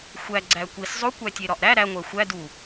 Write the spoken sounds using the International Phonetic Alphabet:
xʷ æ ɡ͡ǀ æ kʷ i s zˤ o kʷ æ tʲ e ɾ ɒ ʔ ɾ æ ɾ æ ŋʷ æ xʷ æ d u

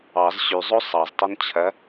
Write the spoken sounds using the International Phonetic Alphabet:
ɑ z ɕ y zˤ o sˤ ɑ z tˤ o n t͡ɕʰ ɐ

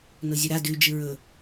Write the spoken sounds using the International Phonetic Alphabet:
n o zʲ u ɾ a d ʉ d͡ʒ ɨ ɹ ɵ

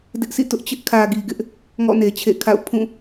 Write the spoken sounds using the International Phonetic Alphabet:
d ɪ˦ ʔ sʰ ḭ˦˨ t ʊ˦ ʔ t͡ɕ ɪ˦ ʔ kʰ ä˨ ɡ i˨ ɡ ɪ˦ ʔ | ŋ ɔ̰˦˨ n e˨ t͡ɕʰ ḛ˦˨ kʰ a̰˦˨ ʊ̯ pʰ ũ˦˨

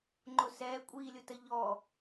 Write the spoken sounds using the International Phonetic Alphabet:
ŋ͡ǃ ʊ s ɛː kʷʼ iː lʲ ʊ t ə ʎ ɔ

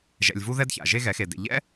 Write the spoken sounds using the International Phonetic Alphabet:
ʒ ɛ̰˧ lʲ v u˦ ð ɛ˦ d ç a̰˨ ʒ e˦ ɣ ɛ˨˦ x e˨ d ḛ˨ ʎ ɛ̰˦

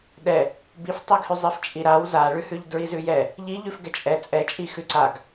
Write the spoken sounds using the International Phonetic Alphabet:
ɗ ɛ | b i f tˤ i ɡ h ʉ zˤ i f t͡ʃʼ i ɾ a w z a ɭ ʉ h ʉ ʎ d ɹ i z ʉ j ɛ | ʎ i ʎ ʉ f ɡ ɛ t͡ʃʼ ɛ t͡sʼ ɛ t͡ʃʼ i x ʉ ǀ a ɡ

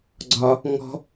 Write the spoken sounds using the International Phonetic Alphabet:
ɡ͡ǀ ɒ | ŋ ɔ̤

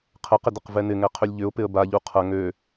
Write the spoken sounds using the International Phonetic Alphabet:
qʰ ə q ɪ d ə q v ɛ n ɪ ŋ ɛ qʰ ʏ lʲ ʎ ʏ ʊ̯ p ɪ ə̯ b a ʎ u qʰ ɐ ŋ ø

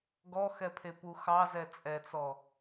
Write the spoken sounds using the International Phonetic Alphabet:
ɡ ɔ x ɛ pʰ e p u x ɑ z ɛ t͡sʼ ɛ t͡s ɔ

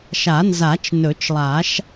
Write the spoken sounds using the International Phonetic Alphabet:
ʃ a˨˩˦ n z a˨˩˦ t͡ʃ n ɵ˨˩˦ t͡ʃ lˠ a˨˩˦ ʃ

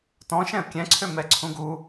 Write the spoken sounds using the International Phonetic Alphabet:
t ɔ̃ ʃ ɛ̃ ə̯ kʲ ɛ̃ ǀʰ ø m ɛ ǀʰ ũ ɡ u

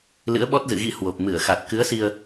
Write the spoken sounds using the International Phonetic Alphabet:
l ɨ̰˧˥ ə̯ ɓ ɔ˦˥ t̚ z ɨ̰˧˨ ɣ ḭ˧˥ h w o˨˩ p̚ m ɨ˧˩ ə̯ x a˨˩ t̚ k ɨ˨˦ ə̯ s i˧ ə̯

